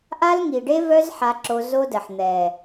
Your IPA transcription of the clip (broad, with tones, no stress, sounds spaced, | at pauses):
ʔ a˦ l ŋ i˨ ɖ e˦ v œ˦ z ħ a˦ ǁ o˦ z o˦ d ə˨ ħ n̪ ɛ˨